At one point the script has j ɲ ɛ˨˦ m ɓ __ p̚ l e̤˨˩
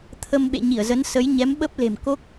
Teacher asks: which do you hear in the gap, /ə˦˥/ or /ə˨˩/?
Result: ə˦˥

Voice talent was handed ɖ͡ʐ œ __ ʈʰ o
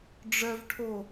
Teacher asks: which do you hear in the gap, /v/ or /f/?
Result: v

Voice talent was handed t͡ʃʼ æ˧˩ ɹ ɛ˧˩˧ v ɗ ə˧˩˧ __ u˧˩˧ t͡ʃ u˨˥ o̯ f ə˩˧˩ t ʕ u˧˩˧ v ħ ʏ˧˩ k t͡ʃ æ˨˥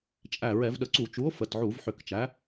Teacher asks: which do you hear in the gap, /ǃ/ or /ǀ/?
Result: ǀ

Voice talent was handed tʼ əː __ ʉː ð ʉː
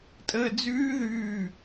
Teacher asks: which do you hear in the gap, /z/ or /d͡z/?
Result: d͡z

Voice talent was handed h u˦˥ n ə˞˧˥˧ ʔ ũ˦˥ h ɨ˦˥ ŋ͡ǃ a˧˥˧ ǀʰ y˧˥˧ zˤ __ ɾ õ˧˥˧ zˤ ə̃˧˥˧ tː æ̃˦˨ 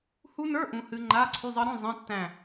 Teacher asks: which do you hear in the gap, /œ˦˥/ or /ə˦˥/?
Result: ə˦˥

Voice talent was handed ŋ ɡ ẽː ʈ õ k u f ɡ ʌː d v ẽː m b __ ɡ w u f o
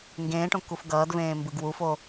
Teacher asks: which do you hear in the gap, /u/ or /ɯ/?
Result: ɯ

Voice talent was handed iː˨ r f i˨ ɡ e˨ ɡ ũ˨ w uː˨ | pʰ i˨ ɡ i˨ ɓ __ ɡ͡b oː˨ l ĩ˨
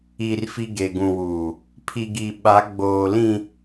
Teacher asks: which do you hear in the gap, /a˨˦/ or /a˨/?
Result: a˨˦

